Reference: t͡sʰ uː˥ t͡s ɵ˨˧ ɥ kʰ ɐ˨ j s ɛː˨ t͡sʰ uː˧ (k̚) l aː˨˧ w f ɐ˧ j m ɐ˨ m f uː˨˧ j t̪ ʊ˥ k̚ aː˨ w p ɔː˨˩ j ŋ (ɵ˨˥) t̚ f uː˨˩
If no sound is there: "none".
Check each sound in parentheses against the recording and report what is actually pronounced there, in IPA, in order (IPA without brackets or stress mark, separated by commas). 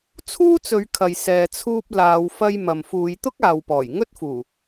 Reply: p̚, ɵ˥